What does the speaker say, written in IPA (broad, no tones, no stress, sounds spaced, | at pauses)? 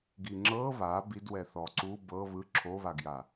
ɡ i ŋ͡ǁ ɤ β a b i d w ɛ θ ɔ ǀ u b ɤ β ɯ ǁʰ o β a ɡ j a